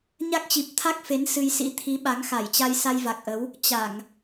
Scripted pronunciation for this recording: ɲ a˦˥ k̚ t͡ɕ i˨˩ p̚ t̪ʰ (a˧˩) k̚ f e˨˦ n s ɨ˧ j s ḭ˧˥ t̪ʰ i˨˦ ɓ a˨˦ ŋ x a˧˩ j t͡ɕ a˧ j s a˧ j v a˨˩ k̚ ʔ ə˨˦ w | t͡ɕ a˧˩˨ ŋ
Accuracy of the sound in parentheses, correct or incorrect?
incorrect